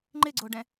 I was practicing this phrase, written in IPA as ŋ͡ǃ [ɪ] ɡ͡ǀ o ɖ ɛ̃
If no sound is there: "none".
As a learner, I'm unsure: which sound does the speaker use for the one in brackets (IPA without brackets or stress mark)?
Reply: ɪ